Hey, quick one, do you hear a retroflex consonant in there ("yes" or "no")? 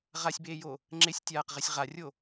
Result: no